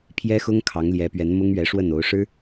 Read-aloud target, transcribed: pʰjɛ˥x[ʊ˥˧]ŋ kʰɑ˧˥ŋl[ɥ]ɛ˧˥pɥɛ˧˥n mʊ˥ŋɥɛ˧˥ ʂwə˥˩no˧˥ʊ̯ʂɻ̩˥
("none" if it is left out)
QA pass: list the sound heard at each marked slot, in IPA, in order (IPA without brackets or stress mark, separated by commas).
ʊ˥, j